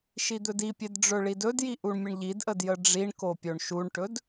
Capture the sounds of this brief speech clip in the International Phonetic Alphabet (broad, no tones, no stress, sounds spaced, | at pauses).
ʃ i d̪ ɵ d i pʲ e d ɖ͡ʐ ɵ ɭ i d ɵ d j i ʔ u ɳ mʲ ə ɳ ʎ i d ʔ ə d j ə ɖ͡ʐ i ɳ k o pʲ o ɳ ʃ u ɳ ʈ ɵ d